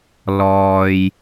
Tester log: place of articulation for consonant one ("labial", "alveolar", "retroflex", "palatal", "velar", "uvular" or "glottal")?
alveolar